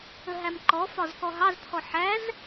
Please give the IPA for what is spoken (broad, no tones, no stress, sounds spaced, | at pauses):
ə ɦ æ m ǃ ɔ f ɒ z k ɔ ɦ ɑ z t̪ʰ ɔ ħ æ z